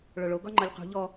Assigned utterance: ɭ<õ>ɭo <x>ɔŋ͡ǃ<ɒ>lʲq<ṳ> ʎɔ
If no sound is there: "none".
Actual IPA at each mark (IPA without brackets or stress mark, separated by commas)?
o, ɡ, ɒ, ṳ